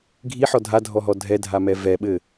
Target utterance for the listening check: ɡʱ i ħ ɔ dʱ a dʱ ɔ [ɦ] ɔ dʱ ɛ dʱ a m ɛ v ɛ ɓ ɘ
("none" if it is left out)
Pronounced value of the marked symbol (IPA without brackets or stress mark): ɦ